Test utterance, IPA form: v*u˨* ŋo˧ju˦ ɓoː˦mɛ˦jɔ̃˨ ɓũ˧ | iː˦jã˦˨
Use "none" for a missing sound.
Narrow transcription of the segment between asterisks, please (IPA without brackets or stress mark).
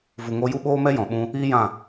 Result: u˨